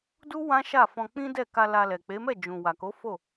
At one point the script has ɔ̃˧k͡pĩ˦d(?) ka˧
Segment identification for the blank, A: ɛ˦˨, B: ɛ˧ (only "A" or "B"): A